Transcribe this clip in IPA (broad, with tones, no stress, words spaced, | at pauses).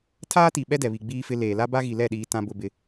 tʰaː˦ti˨ ɓɛ˦dɛ˨βi˨ ɡ͡biː˦fɪ˦ leː˨la˦ ba˦ɣi˨lɛ˦˨ɗiː˨ tã˦bʊ˦bɪ˦